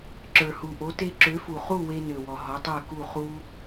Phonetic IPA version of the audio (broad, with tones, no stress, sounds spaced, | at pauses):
ǁ ə˞˩ h u˩ ʔ o˩˥ t e˧ ǁ ø˩˥ f u˩ χ u˥˩ w e˧ n ø˩ w ɔ˩ ɦ ɔ˩˥ tˤ ə˞˥˩ k u˥˩ χ u˥